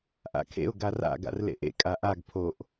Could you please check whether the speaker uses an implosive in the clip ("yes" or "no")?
no